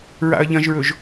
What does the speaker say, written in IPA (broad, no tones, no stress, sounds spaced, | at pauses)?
ɹ a̰ ɐ̯ ʎ ɐ̃ ʒ ɹ ɵ ʒ